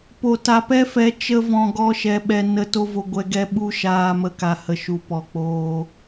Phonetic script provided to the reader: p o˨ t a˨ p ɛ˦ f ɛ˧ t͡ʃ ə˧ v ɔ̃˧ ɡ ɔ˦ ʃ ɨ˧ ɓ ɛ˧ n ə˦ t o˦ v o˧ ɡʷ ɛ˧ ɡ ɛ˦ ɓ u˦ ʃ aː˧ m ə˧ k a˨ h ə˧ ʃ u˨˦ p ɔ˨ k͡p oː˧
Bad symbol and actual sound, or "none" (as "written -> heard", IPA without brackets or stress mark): ɨ˧ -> ɛ˧